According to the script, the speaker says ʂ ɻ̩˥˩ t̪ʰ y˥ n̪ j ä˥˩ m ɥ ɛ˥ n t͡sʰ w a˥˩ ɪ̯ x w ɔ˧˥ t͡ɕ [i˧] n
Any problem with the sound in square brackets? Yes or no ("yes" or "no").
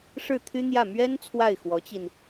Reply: no